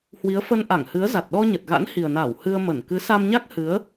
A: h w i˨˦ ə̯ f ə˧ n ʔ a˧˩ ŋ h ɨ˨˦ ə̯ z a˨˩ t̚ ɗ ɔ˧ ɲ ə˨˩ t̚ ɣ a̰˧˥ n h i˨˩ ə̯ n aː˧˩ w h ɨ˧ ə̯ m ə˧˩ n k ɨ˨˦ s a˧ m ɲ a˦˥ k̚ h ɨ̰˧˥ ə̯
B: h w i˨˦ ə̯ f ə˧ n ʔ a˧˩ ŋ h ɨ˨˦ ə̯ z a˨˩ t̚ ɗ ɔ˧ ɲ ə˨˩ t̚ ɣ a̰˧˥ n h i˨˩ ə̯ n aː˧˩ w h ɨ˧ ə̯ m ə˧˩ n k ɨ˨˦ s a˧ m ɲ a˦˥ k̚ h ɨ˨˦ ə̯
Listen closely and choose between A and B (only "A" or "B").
B